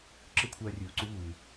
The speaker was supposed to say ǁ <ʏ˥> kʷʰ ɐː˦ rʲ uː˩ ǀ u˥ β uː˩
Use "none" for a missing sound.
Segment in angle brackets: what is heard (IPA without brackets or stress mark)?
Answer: ɨ˥